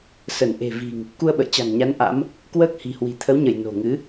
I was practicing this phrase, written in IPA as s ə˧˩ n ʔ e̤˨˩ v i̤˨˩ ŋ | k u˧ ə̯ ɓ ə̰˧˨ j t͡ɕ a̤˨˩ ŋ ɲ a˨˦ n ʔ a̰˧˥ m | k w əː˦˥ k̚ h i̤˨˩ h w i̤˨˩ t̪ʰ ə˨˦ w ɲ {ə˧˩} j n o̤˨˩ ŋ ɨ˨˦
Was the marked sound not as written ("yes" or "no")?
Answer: no